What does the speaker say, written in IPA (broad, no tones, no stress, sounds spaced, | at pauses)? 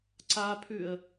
ǀ a pʰ ʉ ə̯